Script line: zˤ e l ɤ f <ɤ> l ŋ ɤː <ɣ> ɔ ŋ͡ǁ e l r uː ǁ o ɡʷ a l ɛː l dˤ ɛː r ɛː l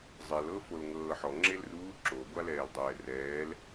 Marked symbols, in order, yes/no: no, no

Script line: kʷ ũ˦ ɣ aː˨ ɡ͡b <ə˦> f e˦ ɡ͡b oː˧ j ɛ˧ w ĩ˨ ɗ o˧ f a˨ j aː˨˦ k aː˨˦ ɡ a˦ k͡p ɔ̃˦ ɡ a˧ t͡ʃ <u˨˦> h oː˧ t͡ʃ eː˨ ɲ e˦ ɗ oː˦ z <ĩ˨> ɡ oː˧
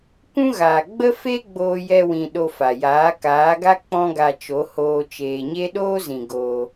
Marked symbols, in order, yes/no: yes, no, yes

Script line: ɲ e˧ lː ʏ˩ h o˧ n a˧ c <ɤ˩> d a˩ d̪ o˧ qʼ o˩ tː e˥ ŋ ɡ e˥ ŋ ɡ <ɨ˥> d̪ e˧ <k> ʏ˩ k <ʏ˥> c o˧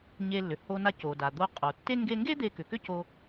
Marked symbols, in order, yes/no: no, no, yes, yes

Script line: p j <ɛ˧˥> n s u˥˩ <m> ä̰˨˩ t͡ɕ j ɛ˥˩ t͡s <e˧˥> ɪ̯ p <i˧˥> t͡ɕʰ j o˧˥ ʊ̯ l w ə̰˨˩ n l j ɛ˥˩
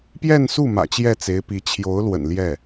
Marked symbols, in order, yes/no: no, yes, yes, yes

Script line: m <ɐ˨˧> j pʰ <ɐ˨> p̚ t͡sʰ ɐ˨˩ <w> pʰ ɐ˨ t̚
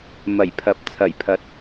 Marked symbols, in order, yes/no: no, yes, no

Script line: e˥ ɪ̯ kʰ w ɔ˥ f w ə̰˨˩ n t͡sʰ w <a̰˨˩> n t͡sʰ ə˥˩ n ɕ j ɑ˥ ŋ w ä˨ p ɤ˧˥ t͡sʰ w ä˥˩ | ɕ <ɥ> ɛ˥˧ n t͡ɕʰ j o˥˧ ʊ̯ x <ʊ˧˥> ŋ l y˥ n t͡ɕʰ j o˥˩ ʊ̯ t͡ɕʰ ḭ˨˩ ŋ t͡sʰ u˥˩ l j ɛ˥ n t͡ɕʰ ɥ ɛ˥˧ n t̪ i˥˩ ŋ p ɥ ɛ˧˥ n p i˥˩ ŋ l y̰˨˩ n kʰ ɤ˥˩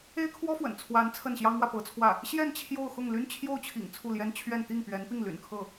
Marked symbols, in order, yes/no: no, no, no

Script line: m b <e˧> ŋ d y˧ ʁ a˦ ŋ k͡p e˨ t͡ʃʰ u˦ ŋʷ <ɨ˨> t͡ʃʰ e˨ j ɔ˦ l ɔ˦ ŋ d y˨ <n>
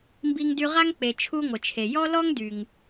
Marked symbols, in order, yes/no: no, no, no

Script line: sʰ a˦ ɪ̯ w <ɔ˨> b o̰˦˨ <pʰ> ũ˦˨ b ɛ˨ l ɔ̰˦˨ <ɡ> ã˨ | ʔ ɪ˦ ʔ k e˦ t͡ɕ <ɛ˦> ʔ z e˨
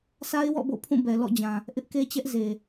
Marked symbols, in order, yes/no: no, yes, no, yes

